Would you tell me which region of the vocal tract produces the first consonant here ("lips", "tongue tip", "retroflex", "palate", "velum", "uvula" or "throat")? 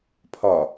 lips